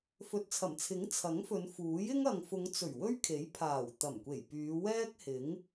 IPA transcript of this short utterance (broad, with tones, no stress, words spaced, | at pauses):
fɵ˨t̚t͡sʰɐ˨˩mt͡sʰɪ˨˥ŋ t͡sʰɐ˨˥ŋfɵ˨˧nfuː˨˥jɪ˥ŋ ɐ˨ŋfʊ˨˧ŋt͡sɵ˨˩ɥ wɵ˥ɥkʰe˨˥jpʰaː˨˩w t̪ɐ˨˩mkʷe˨˩jpyː˨˧ wɛː˥k̚hɪ˨˥ŋ